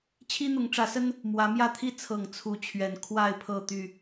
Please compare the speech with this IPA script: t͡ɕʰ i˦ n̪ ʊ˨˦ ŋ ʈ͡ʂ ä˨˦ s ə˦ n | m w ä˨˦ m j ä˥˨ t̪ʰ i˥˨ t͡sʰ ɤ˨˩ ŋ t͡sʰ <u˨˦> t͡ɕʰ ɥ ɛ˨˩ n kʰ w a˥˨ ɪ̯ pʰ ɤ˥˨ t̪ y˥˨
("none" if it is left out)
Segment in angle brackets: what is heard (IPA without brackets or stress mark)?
u˨˦